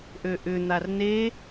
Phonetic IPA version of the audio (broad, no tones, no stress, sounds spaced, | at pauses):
ʔ ø ʔ ʏ n̪ a r n e